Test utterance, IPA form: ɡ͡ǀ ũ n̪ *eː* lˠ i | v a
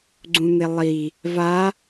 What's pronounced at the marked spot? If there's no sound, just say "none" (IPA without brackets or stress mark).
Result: e